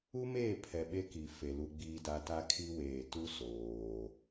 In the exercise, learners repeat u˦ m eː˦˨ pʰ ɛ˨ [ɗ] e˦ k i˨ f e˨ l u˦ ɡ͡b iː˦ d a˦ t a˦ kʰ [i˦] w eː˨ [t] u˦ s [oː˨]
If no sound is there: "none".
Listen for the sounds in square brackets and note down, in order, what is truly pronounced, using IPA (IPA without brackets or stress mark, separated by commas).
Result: ɓ, i˦, t, oː˨